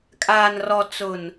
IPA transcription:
kʼ aː˨ n r ɔ˨ t͡s ʊ˨ n

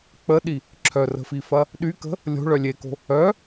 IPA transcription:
k͡p ə ɗ i | ǁʰ œ r ə̤ f i f ɐ | ɗ y k ə̤ | lʲ o̤ ɭ œ lʲ e k o̤ | œ

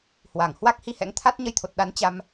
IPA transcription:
h w a˧˩ ŋ h w a˦˥ k̚ h i˧ h ɛ̰˧˥ ŋ t̪ʰ a˦˥ t̚ ɲ ə˧ j t̪ʰ o˨˩ t̚ ɗ a˨˦ n t͡ɕ a˧ m

